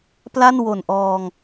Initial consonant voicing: voiceless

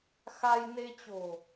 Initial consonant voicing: voiceless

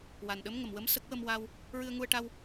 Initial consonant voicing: voiced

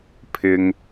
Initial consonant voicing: voiceless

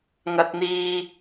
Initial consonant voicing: voiced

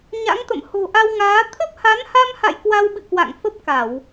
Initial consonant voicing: voiced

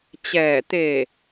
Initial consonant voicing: voiceless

